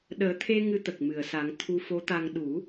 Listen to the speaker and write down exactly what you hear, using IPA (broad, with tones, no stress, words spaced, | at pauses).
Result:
ɗəː˨˩˦t̪ʰe˧ ŋɨ˧t̪ə˨˩k̚mɨ˨˩˨ə̯sa˨˩˦ŋ t̪ʰu˧fo˧˥t̪a˧ŋ ɗu˨˩˦